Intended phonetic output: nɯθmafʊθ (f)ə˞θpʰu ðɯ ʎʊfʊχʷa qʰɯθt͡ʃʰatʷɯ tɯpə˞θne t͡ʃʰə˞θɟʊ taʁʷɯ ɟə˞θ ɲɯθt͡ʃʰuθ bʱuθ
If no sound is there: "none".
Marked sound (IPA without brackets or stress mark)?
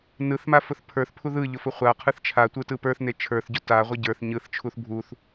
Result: pʰ